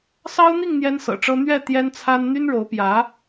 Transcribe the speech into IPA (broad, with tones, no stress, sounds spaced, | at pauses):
s ɑ˥ ʊ̯ n̪ i˥˩ ŋ n̪ j ɛ˥ n s ɤ̰˨˩ ʈ͡ʂ ɤ˥ n̪ ɥ ɛ˥˩ t̪ j ɛ˥ n t͡sʰ a˥ n n̪ y˥ n ɻ o˧˥ ʊ̯ p j ä˧˥